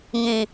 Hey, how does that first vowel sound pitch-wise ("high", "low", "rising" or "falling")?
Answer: low